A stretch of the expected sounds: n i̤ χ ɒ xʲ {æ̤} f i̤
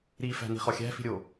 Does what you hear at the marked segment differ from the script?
no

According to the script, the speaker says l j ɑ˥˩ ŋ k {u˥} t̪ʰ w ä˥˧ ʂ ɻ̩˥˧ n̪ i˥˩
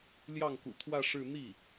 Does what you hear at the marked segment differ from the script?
yes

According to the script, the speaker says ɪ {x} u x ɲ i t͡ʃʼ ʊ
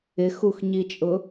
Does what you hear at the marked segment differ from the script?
no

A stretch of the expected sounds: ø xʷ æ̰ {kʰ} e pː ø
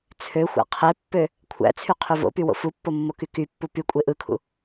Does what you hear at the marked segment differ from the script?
yes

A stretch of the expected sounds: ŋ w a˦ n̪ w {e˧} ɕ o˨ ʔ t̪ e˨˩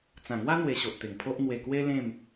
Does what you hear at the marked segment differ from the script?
no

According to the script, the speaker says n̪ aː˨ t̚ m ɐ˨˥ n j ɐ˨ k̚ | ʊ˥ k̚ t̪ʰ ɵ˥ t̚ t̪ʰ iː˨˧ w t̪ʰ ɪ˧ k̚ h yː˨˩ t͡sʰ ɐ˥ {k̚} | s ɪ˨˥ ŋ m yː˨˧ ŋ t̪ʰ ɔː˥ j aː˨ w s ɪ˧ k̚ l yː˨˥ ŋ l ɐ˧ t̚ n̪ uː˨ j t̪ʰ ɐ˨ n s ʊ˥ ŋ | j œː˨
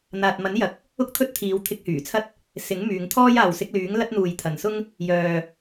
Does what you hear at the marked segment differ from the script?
yes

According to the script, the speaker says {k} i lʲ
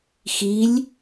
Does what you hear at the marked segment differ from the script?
yes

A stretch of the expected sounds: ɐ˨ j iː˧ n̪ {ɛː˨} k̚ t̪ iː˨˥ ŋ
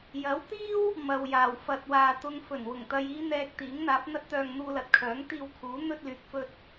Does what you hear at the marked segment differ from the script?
no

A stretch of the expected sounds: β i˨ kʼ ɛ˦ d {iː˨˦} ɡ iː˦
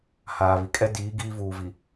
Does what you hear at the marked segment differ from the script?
no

